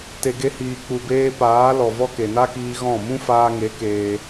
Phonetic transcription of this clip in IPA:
t e˨ ɡ e˧ h iː˨ k͡p u˨ b eː˧ p aː˨˦ l ɔ˨ v ɔ˦ k e˨ n a˦ k iː˧ ɣ ɔ̃˦˨ m ũ˦ f aː˧ ŋ e˨˦ k eː˧

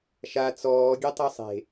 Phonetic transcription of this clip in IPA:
ʃ a t͡s ɔː ɡʲ e tˤ o sˤ e̤

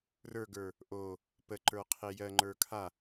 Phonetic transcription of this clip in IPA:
r ə˞ ɡ ə˞ | ʔ o | p ə ǃ ə˞ qʰ e j ɜ ŋ͡ǃ ə˞ kʰ a

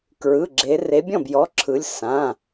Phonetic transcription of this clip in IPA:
k ɹ ɯ˩˧˩ ɡ͡ǁ e˨˦ r e˨˦ bʲ ɔ̃˥˩ b j ɔ˩˧˩ ǁʰ ɯ˨˦ lʲ s ã˩˧˩

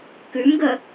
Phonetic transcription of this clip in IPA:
k ʉ m ɡ ə

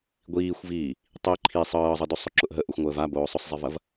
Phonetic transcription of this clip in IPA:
ɡʷ iː xʷ v iː | tˤ i ǃʰ i sˤ ɤː zˤ ɤ d o sˤ ʊ ǁ ʊ ʔ ɦ ə ʔ ʊ xʷ ŋʷ əː v a b oː sˤ ʊ sˤ zˤ i v ɐ v

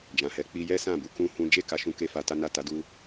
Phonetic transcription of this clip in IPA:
d͡ʒ ã˨ h ɛ˨˦ k͡p i˧ j ɛ˦ s ã˦˨ b u˧ k ũ˦ h ũ˦ d͡ʒ e˦˨ k a˧ ʃ ũ˦ k e˦ f a˧ t a˦ n a˦˨ t a˨˦ d u˧

